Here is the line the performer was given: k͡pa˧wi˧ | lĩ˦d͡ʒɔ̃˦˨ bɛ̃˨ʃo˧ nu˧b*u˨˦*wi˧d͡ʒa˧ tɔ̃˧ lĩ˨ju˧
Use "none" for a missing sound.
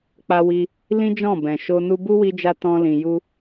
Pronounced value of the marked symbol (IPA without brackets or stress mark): u˦